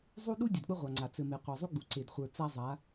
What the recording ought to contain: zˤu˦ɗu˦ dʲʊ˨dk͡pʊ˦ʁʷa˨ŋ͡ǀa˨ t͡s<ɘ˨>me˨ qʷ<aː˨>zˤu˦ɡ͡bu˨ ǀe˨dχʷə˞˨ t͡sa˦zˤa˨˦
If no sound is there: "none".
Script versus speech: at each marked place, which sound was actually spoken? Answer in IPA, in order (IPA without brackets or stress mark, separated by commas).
ɘ˨, a˨